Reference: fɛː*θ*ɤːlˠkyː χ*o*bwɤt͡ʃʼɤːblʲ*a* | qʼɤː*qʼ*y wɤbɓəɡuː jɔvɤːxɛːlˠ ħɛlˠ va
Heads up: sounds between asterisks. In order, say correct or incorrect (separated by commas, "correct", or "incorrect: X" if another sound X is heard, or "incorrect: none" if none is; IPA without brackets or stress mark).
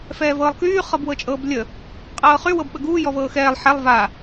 incorrect: v, incorrect: ɤ, incorrect: ə, incorrect: χ